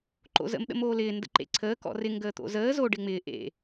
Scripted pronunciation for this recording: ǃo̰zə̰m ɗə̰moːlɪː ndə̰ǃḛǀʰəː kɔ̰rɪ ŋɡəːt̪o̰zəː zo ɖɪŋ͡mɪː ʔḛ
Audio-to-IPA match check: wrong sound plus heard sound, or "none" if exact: none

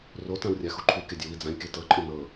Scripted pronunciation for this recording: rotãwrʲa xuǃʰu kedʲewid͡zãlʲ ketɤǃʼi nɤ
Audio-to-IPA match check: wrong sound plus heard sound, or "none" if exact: none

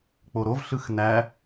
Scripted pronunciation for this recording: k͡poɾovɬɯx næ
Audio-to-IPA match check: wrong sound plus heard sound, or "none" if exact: none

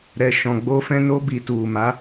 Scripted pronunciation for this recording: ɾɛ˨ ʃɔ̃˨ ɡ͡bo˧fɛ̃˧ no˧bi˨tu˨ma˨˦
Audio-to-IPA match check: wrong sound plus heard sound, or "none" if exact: none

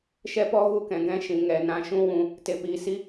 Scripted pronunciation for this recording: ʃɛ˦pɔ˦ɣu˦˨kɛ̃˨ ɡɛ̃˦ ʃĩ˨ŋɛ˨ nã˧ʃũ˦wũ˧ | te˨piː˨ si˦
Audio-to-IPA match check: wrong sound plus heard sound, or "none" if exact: none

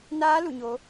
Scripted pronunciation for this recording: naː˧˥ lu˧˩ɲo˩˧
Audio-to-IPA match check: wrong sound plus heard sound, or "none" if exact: none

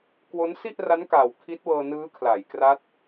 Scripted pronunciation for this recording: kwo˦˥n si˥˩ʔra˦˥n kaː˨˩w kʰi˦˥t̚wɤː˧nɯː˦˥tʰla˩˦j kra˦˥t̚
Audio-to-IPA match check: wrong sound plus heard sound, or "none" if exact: tʰ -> kʰ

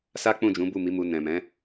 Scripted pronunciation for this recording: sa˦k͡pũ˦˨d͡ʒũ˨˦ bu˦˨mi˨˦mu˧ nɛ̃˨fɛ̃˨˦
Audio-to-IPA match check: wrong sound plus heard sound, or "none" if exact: f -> m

